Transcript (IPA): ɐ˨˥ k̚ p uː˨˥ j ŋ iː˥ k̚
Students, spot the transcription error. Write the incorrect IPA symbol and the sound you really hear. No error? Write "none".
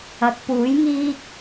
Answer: none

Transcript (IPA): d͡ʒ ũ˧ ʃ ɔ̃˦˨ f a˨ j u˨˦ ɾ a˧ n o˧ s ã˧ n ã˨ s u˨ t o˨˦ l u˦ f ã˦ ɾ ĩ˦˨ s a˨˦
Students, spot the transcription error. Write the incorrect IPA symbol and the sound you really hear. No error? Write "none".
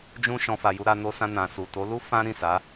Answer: ɔ̃˦˨ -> ɔ̃˧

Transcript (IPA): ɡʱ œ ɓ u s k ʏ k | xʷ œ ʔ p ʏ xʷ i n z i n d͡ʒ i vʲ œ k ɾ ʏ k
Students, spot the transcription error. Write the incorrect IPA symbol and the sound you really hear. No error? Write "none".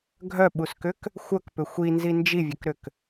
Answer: ʔ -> k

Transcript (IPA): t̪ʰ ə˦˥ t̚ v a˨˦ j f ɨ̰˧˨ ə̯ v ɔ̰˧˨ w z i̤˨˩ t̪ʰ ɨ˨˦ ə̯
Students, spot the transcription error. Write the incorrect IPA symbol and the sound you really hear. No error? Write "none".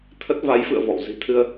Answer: ɨ˨˦ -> ɨ˧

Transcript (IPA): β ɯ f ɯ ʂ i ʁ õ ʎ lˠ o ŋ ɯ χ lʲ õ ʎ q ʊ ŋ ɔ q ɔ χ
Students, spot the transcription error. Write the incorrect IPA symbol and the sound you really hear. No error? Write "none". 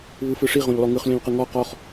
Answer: ʊ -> ɯ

